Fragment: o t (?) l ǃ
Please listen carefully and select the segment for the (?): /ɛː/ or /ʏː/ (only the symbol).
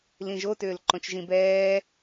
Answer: ʏː